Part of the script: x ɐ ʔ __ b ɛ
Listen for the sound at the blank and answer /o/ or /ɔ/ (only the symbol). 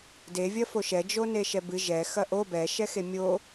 o